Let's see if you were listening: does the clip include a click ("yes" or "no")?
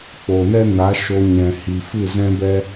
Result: no